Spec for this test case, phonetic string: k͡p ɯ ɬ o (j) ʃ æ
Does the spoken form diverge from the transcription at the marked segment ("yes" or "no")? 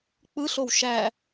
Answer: yes